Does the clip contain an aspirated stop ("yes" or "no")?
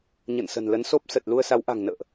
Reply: no